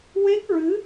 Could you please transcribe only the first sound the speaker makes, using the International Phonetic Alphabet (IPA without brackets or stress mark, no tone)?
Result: w